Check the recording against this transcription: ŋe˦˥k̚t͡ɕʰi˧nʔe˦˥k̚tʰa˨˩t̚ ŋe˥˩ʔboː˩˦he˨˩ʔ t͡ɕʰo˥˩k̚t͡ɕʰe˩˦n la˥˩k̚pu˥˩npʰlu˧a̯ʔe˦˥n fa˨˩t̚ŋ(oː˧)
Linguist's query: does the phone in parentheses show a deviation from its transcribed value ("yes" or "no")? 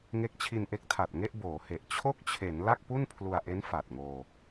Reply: no